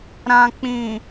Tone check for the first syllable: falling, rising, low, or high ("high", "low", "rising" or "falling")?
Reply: low